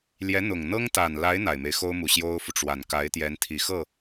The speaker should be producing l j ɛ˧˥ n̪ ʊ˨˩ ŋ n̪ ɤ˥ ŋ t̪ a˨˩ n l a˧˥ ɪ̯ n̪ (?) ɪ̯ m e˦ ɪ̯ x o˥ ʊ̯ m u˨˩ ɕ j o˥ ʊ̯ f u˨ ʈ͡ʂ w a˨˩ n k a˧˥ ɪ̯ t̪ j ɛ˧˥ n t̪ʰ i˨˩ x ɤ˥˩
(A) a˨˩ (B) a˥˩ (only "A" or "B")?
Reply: A